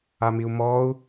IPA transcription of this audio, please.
a m i u̯ m ɔː u̯

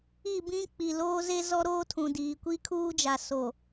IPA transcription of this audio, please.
i˦˨ b ĩ˦ k͡p i˨ l oː˦ z e˦ z ɔ˦ ɾ oː˦ tʰ ũ˨ d iː˨ kʷ i˦ kʰ uː˦ d͡ʒ a˨ s o˨

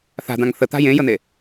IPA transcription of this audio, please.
θ a̤ d̪ ã ŋ θ ə t̪ a̤ j ẽ j ə n̪ e

